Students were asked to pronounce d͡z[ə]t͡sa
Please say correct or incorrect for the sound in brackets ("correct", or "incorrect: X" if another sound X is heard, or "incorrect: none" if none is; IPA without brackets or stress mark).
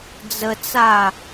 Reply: correct